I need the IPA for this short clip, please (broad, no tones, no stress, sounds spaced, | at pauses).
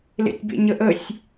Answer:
l ḛ tʲ b ḛ ɲ ə ʔ ə sʲ